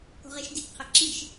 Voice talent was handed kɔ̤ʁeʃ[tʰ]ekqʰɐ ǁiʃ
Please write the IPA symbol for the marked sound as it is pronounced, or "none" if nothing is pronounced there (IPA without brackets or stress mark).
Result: d